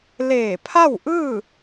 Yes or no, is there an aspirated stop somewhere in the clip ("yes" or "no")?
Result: yes